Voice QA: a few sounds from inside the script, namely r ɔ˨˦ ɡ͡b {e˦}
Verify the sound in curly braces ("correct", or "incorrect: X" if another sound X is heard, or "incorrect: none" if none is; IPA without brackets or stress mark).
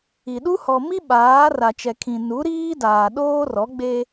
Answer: correct